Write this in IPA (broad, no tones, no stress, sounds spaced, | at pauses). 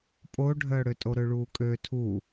pʼ o ɖʱ œː ɽ ø tʼ o ɾ ø ɭ uː kʼ ø tʰ u